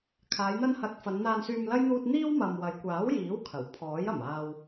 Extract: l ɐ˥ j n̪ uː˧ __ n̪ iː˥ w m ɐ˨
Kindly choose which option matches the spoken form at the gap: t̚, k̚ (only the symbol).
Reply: t̚